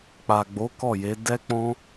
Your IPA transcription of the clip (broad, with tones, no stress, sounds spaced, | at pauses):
k͡p a˨ ɡ͡b o˨˦ k ɔ˦˨ j e˨˦ d ɛ˦ k͡p ɔ̃˦